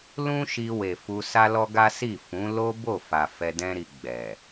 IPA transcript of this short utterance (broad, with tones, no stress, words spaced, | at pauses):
lũ˦ʃi˧we˨ fu˧ sa˦lɔ˦ɡa˦ si˦˨fũ˨˦ lo˦bo˦˨fa˨ fɛ˧dɛ̃˦ɾi˧ ɡ͡bɛ˨